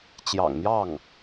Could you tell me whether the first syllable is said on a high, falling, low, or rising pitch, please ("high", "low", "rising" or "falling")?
low